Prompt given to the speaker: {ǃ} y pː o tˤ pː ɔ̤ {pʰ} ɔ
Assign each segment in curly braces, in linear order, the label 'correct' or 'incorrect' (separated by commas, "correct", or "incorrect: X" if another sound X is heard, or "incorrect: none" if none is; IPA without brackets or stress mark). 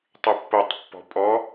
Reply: incorrect: tˤ, incorrect: pʼ